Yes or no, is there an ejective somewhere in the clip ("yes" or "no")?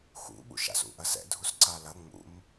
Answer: no